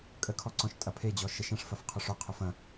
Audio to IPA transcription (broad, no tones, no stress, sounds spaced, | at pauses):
kʼ ə kʰ ɔ ǀ ɔ̃ ʃ tʼ ɐ pʰ e d͡ʑ ɔ ʃ ə ʃ ɐ̃ ʂ f ɐ f qʰ ʏ ʂ ʊ qʰ ʏ f ɐ̃